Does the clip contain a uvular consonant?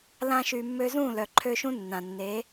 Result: no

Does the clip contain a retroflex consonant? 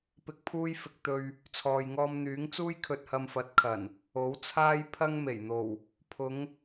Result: no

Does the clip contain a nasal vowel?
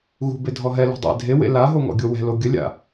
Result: no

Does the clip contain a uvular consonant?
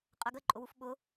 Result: yes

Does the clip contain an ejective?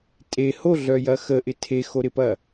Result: yes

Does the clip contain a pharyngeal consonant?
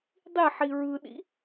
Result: yes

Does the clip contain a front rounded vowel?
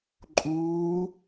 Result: no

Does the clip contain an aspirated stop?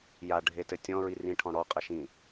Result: yes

